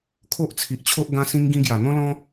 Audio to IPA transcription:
kʰo˦ʔt͡sʰi˨ʔt͡ɕʰo˦ʔ ɡã˦sĩ˦ŋ ɡĩ˦ ɡja˨˩ n̪ɔ̃˦ lɔ̃˦

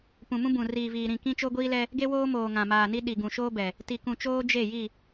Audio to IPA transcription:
pũ˨mũ˦bũ˨ riː˨viː˨ɾĩ˦˨ kĩ˦t͡ʃo˦ɡʷiː˦lɛ˦ | ɡe˦woː˦moː˨ ŋã˨maː˨ni˦ ɗi˨ɡũ˨ʃoː˦bɛ˨ | ti˨kũ˨t͡ʃoː˦ d͡ʒe˦˨ji˦˨

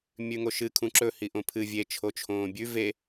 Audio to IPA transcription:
mʲʉŋoʃɨ kʰũǁɵ hiʔõpʰɨ vʲe t͡ʃʰot͡ʃʰõːbʲʉ ve

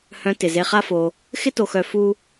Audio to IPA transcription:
hœ̃˨ tɪ˩ze˨χa˦fo˨ | xɪ˦to˨xœ˨ fu˦

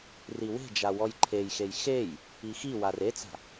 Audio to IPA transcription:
riwe̤d͡ʒa wɔjǃʰejxej xej | ixiwar et͡sa̤

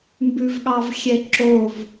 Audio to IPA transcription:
mbʉvɠɑvxʲɛǁov

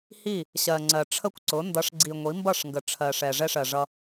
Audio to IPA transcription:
hi˦˨ | ɕɜ˨ŋ͡ǀɜ˨ ʈ͡ʂʰə˦kʷǀʊ˨˦ ndʌ˨˦ʂɡ͡ǀi˨ŋʷi˨˦ mbʌ˦˨ʂŋɡə˨ ʈ͡ʂʰɜ˨ʂɛ˨ ʐɛ˦ʂɜ˨ʐʌ˦

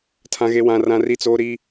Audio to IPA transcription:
tʰã˦ɣe˦wã˦rã˦ ri˦t͡soː˦ ɾi˦

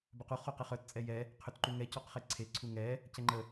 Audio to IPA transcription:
bœqu χoqɛχœt t͡sʼɛjɛ | qʰʏtǃuŋɛ cɔqχeǀʰe ǀʰuŋɛ | cɛŋ͡ǃə

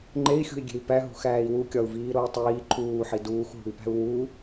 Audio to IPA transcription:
ŋ͡ǃei̯xʲṳi̯ɡʲe̤i̯ pæɦṳxæːi̯ wukʲɒu̯viː ɾoi̯tˤiː ǃʰuːħi duːxɦṳi̯pæ̤u̯ wu

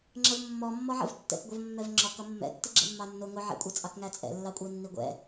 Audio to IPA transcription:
ŋ͡ǁəvmːɔmːɔ ʕə̰vtːɛ̰kɡʷʌv mːɛvŋ͡ǁɔkʌ mːɛ̰ tːiɡ͡ǁə̰mːɑnːʊ ŋʊʕɛ̰kʷʼɛt͡sʼɑk ŋæt͡sʼɛ̰lːɑkʷʼʌɪ̯ nːiɡʷɛ̰

